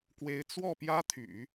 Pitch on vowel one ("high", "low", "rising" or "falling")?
rising